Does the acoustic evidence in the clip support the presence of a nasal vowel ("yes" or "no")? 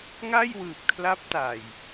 no